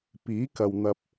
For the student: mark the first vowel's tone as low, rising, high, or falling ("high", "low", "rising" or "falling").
rising